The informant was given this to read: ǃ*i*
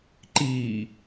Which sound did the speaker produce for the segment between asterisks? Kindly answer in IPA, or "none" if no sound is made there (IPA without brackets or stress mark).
iː